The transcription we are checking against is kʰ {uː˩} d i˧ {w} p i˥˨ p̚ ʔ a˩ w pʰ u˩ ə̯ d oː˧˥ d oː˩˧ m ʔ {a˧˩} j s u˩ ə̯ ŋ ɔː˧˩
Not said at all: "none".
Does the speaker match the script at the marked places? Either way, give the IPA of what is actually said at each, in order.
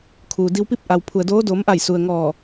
uː˩, w, a˧˩

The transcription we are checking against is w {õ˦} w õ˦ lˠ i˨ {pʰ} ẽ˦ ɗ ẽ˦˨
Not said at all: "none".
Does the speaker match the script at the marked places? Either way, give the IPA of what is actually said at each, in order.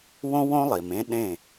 õ˦, m

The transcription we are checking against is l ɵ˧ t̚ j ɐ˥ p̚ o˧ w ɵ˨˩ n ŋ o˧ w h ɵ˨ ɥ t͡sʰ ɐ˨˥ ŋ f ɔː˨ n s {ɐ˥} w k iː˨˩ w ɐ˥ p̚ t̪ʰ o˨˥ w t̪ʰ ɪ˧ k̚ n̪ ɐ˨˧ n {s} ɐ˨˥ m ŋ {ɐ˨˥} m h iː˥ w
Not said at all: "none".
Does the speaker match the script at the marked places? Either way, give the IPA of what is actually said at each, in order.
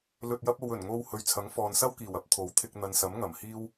ɐ˥, s, ɐ˨˩

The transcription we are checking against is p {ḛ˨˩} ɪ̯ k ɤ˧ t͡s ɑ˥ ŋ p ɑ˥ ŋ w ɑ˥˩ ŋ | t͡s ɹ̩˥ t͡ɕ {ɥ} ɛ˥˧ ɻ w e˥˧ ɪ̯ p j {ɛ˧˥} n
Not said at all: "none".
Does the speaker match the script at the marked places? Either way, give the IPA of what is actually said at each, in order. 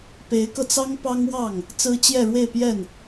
e˧˥, j, ɛ˥˩

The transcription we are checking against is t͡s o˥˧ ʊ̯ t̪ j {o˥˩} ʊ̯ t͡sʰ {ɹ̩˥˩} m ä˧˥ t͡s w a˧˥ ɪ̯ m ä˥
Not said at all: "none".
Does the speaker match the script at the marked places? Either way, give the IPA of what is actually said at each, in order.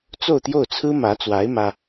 o˥˩, ɹ̩˥

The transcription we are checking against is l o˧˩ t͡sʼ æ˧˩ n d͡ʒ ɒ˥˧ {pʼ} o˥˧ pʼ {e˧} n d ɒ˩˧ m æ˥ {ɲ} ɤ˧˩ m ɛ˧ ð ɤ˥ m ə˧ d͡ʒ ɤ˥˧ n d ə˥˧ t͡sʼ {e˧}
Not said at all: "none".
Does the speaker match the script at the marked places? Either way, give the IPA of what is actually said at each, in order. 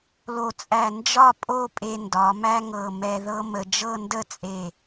pʼ, e˧, ŋ, e˧˩

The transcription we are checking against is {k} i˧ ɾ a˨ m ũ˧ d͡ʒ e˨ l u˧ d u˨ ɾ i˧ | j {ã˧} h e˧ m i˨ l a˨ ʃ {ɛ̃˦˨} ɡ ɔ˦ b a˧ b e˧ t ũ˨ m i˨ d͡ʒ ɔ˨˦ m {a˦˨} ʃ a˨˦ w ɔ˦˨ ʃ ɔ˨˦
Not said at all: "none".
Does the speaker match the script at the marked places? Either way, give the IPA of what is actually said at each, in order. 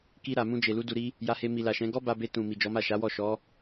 k, a˧, ɛ̃˨˦, a˦˨

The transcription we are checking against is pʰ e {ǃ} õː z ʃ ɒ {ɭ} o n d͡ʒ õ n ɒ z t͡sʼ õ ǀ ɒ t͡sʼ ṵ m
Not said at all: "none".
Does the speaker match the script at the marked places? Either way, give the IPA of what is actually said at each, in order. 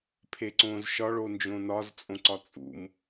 ǀ, ɭ

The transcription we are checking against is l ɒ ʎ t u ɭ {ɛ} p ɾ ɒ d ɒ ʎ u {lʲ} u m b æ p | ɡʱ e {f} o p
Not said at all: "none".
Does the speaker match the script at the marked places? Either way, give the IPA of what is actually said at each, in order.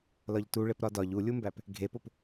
e, lʲ, p

